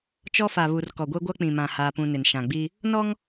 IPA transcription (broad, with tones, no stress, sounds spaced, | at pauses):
t͡ʃ ɔ˦ f a˨ β u˨ r k ɔ˨ ɡʷ e˦ ɡʷ a˦ k͡p ĩ˨ m ã˨ h aː˦ p ũ˦ n ɪ˨ n ʃ ã˨ ɡ͡b i˦ | n ɔ˦ ŋ